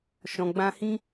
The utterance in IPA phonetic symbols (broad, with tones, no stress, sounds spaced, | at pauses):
ʃ ɔ̃˨ ɡ͡b ã˧ h ĩ˦